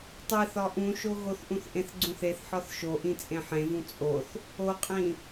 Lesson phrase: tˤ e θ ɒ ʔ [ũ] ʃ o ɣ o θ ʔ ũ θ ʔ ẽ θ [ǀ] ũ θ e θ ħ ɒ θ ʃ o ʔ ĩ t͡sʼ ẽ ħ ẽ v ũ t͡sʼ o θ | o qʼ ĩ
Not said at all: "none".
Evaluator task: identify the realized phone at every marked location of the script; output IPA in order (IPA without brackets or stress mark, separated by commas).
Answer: ũ, ɡ͡ǀ